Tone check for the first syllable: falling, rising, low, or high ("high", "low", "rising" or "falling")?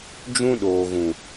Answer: high